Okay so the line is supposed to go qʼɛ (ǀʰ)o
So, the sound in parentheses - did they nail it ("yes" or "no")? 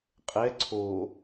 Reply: yes